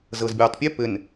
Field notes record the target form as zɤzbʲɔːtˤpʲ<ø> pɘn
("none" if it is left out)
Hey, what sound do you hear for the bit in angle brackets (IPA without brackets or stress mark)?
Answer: ø